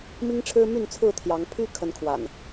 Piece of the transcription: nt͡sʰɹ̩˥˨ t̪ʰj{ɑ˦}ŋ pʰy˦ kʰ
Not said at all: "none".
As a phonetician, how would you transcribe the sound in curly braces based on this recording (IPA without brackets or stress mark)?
ɑ˨˦